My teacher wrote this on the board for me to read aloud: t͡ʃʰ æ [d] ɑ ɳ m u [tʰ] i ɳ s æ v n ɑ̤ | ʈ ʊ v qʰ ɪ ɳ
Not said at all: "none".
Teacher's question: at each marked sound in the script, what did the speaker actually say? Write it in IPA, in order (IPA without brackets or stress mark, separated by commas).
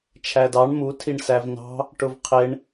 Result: d, tʰ